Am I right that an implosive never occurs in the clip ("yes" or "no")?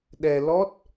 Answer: no